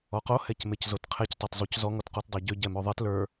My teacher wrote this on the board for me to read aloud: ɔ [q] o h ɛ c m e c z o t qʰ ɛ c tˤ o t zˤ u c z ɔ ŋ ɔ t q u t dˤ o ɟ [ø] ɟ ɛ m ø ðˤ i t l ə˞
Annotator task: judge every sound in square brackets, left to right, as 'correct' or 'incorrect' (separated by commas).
correct, correct